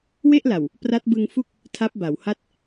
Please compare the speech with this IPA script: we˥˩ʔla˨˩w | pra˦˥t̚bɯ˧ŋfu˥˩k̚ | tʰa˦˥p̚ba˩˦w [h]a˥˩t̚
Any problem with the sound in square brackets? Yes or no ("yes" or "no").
no